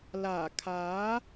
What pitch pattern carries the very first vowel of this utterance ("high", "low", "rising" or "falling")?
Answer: low